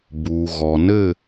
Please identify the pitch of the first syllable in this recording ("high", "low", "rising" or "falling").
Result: low